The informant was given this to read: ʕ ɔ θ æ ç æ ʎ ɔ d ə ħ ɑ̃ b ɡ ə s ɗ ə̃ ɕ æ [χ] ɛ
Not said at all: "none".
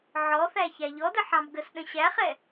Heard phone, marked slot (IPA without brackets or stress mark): χ